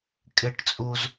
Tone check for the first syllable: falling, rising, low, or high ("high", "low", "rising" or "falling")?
high